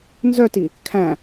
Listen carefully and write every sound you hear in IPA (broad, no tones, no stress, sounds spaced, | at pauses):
n z œ t i | kʰ æ̃